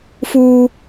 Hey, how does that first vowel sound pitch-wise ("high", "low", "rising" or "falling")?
high